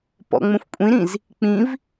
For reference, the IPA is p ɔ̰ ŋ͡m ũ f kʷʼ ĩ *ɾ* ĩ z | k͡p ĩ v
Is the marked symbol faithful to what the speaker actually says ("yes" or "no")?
yes